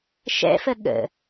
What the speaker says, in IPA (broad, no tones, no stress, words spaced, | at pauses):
ʃɛ̰fə ɠə̰